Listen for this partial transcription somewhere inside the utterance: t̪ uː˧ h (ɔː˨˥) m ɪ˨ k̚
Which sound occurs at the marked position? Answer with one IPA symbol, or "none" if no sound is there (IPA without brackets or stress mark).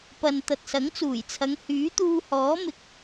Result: ɔː˨˥